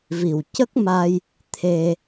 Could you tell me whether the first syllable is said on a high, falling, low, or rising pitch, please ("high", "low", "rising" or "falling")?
low